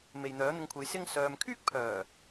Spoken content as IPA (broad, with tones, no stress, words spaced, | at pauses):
me˨j n̪œː˨˥n̪ɪ˧ŋkʷʰe˨˧j sɪ˥ŋsœː˧m kʰyː˥k̚pʰœː˨˩